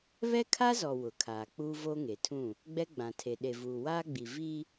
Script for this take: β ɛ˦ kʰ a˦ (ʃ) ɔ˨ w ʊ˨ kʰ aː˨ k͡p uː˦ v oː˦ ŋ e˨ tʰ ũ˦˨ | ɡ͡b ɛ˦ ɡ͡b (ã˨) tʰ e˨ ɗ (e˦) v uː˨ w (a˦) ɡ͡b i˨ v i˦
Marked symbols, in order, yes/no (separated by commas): no, yes, no, no